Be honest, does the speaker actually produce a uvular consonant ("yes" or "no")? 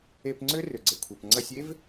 no